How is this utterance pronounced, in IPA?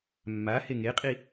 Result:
mː a h e ŋ e qʼ i

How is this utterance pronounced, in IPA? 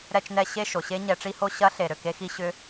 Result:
ɾ ɛ˥˧ t͡ʃ n ɛ˥˧ ɕ e˥˧ ʃ o˩ ɕ e˧˥ ɲ ɛ˧˩˧ ʈ͡ʂ i˥˧ h o˥˧ ɕ ɐ˧˥ ɬ e˩ ɾ ø˩ k e˧˥ x i˧˥ ɕ ʏ˧˥

